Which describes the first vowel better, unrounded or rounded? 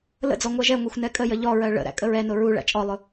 unrounded